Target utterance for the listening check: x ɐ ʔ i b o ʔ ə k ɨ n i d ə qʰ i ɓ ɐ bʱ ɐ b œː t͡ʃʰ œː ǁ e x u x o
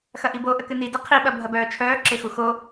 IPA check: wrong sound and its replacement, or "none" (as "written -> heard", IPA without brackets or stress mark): none